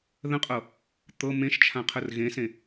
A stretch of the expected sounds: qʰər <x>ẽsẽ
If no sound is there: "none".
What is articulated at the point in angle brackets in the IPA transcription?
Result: ɣ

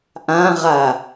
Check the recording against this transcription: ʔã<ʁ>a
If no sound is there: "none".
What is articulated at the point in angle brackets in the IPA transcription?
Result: ʁ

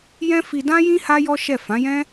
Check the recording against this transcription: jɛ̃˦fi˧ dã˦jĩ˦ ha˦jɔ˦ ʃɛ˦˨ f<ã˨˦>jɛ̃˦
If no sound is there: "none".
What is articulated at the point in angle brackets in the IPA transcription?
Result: ã˨˦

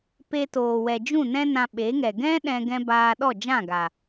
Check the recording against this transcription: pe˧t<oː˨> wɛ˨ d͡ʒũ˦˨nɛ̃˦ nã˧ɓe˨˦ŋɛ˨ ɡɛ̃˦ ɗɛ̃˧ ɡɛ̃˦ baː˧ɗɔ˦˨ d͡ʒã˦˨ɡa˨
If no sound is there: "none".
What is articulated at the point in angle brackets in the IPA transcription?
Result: oː˨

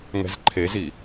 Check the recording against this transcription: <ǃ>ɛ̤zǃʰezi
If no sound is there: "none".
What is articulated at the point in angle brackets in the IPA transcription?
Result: ŋ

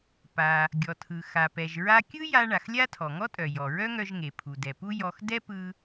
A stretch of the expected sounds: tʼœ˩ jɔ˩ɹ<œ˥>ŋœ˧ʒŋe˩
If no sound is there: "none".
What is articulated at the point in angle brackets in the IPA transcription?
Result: œ˥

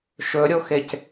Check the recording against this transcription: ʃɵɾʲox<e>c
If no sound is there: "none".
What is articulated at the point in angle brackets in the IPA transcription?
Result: e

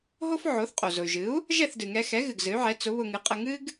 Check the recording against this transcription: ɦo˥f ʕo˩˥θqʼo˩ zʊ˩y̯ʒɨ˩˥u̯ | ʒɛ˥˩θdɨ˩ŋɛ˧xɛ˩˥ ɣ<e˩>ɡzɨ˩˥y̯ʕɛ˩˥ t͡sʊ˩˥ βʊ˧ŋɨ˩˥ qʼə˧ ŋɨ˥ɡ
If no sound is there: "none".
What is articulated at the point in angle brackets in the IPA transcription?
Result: ɨ˩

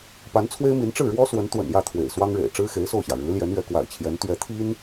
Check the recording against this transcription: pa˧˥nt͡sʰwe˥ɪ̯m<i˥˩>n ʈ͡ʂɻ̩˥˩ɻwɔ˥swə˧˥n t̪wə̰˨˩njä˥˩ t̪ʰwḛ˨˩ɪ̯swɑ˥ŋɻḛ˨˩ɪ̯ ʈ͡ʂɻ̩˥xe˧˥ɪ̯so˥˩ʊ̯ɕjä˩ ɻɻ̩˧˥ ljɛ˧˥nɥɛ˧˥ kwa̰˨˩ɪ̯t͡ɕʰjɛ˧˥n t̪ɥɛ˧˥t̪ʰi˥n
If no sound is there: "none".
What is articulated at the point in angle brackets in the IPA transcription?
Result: i˧˥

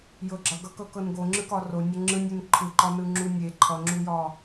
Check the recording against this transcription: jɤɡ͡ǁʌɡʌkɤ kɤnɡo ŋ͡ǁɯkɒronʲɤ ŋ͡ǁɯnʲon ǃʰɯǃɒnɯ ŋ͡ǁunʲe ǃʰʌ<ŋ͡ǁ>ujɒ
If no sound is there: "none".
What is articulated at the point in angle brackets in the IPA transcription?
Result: ŋ͡ǁ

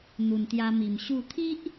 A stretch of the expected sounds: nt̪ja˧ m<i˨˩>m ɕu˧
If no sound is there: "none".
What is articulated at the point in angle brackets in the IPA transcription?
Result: i˨˩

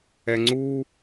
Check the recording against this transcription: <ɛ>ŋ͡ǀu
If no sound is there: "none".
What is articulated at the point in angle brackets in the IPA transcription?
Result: ɛ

